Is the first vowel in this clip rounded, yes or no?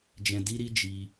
no